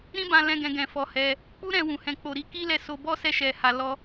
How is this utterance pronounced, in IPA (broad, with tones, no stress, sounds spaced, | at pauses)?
ɾ ĩ˦ b ã˧ l ɛ̃˧ ɡ ɛ̃˧ ɡ ɛ̃˧ f ɔ˧ h ɛ˧ | k͡p u˦ ɾ ɛ̃˧ w ũ˨ h ɛ̃˨ k͡p o˨ ɾ i˧ k i˦ l ɛ˧ s o˧ b ɔ˦ s ɛ˧ ʃ ɛ˨ h a˨ l ɔ˧